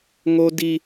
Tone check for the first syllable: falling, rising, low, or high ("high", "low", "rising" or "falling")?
high